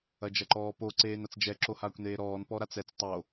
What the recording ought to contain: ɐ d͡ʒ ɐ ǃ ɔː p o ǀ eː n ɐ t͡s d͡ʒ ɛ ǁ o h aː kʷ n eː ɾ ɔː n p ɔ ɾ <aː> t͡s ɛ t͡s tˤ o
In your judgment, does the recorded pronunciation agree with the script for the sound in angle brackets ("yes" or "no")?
no